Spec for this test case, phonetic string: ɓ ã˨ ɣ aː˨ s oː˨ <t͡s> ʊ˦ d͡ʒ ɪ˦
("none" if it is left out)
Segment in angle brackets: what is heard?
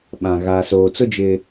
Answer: t͡s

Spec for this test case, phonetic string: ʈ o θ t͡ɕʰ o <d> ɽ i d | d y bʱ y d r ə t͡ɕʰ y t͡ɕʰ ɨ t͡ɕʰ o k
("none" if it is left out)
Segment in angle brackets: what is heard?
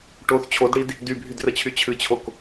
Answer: d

